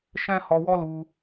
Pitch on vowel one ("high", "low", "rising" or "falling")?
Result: high